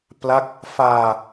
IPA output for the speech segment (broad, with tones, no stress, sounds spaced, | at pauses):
p l a˦˥ k̚ | f aː˧